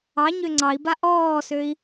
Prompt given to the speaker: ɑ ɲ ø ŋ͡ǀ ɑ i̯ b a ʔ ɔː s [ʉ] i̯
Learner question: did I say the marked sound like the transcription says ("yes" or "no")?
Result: no